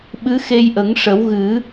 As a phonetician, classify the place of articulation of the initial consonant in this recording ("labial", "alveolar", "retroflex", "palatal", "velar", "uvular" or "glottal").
labial